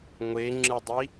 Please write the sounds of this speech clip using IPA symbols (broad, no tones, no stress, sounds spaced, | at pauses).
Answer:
ŋʷ e ŋ͡ǁ ɯ dˤ i